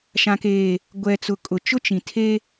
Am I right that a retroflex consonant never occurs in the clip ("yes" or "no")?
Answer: yes